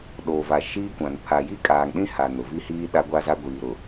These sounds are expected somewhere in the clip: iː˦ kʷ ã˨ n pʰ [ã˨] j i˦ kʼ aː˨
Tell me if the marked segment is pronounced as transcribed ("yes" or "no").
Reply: no